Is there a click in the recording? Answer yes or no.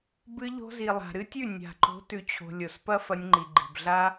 yes